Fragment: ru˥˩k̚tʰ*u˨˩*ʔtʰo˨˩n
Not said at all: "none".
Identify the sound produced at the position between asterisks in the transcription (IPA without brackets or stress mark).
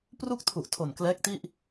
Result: u˨˩